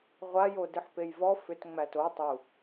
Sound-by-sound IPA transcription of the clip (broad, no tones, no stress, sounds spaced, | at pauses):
ʁʷ a j o d ɨ ħ p e j v ɔ f ʏ t ŋ͡m æ t o tˤ u